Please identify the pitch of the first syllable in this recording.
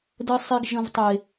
low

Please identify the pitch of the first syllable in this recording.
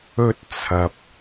high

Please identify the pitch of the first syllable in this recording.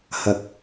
low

